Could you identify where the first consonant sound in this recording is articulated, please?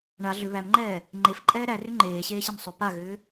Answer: retroflex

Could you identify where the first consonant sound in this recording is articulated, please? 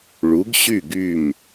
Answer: retroflex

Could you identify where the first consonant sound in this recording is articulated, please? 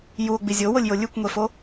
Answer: palatal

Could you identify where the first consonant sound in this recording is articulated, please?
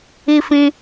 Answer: labial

